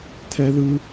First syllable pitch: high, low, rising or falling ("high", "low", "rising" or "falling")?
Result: high